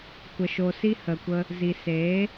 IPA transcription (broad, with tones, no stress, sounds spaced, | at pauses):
kʷ ə˨ ʃ o˨ s i˧ h ə˨ kʷ ə˧ | z i˨ s eː˨˦